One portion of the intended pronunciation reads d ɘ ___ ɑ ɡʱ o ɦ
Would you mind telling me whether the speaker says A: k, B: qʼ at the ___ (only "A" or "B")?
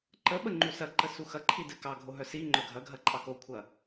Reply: A